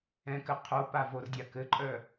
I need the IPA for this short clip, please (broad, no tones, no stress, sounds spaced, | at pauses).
ɛ̃ k ɘ qʰ o p a v o r dʲ a k ɘ ǃʼ œ